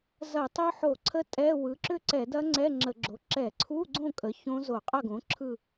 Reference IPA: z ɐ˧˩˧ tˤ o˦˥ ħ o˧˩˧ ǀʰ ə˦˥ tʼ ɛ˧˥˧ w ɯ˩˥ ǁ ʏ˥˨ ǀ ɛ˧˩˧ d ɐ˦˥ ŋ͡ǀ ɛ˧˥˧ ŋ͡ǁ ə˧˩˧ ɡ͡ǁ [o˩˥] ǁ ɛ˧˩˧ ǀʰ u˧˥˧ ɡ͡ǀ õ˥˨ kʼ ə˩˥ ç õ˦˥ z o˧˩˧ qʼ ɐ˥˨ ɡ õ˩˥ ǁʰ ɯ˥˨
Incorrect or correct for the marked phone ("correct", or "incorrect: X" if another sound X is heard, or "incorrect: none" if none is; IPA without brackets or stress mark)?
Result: correct